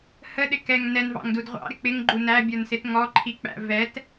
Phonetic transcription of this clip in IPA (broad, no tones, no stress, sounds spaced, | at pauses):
h ə ɗ ɪ k ɛ ŋ n ɛ n v ɑ̰ ŋ d u d ʁʷ ɑ̰ ɾ ɪ k͡p ɪ ŋ ɡ͡ǃ u n æ bʲ ə˞ n s ɪ t ŋ ɔ ǃʰ i k͡p æ̰ v ɛ t